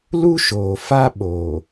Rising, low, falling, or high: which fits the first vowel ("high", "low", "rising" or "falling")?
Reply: high